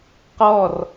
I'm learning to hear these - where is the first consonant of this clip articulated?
uvula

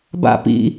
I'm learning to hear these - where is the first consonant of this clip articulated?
lips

